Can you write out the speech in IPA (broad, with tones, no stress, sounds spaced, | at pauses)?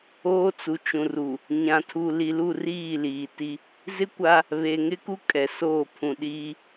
oː˦ t͡s u˨ t͡ʃ ũ˨ r u˨ | ɲ ã˨ tʰ u˨ l i˨ l u˦˨ r iː˦˨ l iː˨ t i˦ | z ɪ˦ kʷ a˦ | β e˨ ŋ ɪ˦ k u˦ kʼ ɛ˨ s oː˦˨ pʰ ũ˨ ɗ iː˦